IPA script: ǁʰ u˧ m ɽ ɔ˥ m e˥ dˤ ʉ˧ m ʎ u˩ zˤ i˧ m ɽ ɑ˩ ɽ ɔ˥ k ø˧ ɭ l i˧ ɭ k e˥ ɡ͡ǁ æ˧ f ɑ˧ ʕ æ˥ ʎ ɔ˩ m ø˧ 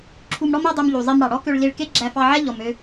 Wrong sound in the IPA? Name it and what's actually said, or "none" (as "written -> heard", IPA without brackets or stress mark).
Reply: none